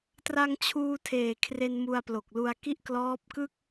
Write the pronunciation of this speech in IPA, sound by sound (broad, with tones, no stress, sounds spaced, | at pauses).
t r a˧ ŋ t͡ɕʰ uː˧ tʰ eː˨˩ kʰ r e˧ n m u˧ a̯ p l o˨˩ k̚ l u˧ a̯ k i˥˩ ʔ k l ɔː˦˥ p̚ k ɯ˥˩ k̚